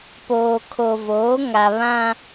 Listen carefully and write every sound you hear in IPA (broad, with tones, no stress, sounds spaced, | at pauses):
p oː˨ kʰ o˨ v oː˨˦ ŋ a˨ β ã˦